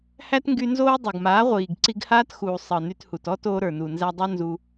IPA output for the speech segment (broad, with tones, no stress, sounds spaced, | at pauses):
h æ˦ t ŋ ɡ y˧ n z oː˦ dˤ o˨ ɡ m aː˨˦ ʁʷ iː˨ ɡ ǀ i˧ ɡ h aː˦ t x uː˨ sˤ ɤ˨ n y˧ t h u˨ t ɔ˦ t oː˧ ɾ ə˞˨ n u˨ n z æ˧ dˤ o˦ n z u˧